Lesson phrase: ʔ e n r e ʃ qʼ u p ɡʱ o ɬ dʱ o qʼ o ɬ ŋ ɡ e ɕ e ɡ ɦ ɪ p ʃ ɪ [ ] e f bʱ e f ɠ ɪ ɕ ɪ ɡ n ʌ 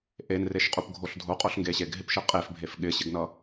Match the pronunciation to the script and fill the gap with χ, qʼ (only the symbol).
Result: qʼ